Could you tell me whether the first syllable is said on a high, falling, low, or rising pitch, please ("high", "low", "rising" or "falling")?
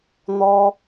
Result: high